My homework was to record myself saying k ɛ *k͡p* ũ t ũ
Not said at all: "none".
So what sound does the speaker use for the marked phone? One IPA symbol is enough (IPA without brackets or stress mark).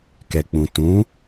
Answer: k͡p